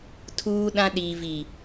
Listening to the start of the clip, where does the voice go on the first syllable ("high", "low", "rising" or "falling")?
high